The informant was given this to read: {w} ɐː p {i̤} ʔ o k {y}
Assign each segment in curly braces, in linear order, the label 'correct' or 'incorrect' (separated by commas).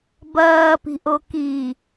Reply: incorrect, correct, incorrect